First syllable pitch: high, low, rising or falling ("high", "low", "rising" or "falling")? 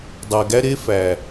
low